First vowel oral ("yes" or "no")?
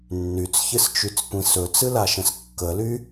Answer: yes